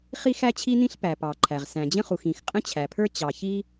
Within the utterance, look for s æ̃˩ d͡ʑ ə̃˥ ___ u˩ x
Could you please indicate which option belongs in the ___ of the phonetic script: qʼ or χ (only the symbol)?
χ